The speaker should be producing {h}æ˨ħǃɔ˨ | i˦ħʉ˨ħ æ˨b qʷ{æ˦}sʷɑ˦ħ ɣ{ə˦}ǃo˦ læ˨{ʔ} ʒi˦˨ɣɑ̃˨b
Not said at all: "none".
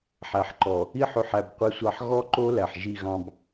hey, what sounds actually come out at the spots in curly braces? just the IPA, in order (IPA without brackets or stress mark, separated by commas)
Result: ħ, ɛ˦, ɔ˦, ħ